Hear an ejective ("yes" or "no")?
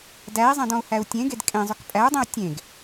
yes